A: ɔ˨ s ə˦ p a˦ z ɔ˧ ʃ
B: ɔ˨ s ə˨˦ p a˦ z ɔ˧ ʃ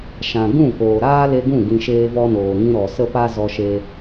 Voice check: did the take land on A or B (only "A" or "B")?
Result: A